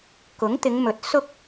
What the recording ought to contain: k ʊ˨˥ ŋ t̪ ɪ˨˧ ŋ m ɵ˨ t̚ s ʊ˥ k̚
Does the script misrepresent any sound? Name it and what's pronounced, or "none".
none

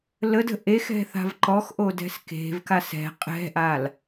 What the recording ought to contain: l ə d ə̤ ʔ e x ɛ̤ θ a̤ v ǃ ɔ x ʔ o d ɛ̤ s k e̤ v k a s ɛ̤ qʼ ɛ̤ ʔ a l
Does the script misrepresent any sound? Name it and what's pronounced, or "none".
none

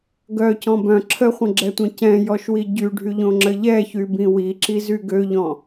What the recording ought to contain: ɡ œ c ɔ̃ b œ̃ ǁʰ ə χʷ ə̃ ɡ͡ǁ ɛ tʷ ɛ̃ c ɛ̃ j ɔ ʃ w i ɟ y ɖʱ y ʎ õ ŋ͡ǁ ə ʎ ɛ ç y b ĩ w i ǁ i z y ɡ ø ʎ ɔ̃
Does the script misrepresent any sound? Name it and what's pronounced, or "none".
none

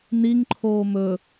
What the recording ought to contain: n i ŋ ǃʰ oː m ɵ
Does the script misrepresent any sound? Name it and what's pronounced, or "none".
none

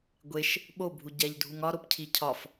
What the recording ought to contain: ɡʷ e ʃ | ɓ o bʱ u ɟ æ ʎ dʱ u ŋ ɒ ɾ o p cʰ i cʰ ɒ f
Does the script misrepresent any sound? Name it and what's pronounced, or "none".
none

